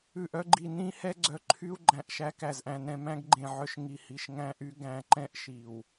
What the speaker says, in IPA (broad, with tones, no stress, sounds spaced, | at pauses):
ʉ˨ ʔ œ˦ ɡ͡ǃ i˨ n ĩ˦ h ɛ˦ ɡ͡ǀ œ˨ ǃʰ y˦ u̯ ɡ͡ǃ æ̃˨ ʔ ʃ æ˦ k æ˨ z ʔ æ̃˨ n ɛ̃˨ m æ̃˦ ɡ ɡ͡ǃ ẽ˨ ʕ œ˨ ʃ ŋ i˨ h i˨ ʃ ŋ æ̃˦ ʔ y˦ ɡ æ̃˨ ǃ ɛ̃˦ ʔ ʃ i˨ w